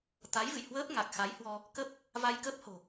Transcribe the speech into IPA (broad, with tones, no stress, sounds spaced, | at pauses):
t̪ a˨˦ j v ɨ̰˧˨ j h w əː˦˥ p̚ ŋ a˨˩ k̚ x a˨˦ j h w ɔ˧ | k ə˦˥ p̚ | v a˧ j k ə˦˥ p̚ h o̤˨˩